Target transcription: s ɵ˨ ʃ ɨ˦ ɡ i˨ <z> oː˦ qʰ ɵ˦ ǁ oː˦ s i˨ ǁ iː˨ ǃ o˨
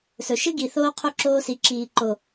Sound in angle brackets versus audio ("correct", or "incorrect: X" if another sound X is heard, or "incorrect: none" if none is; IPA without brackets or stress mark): incorrect: θ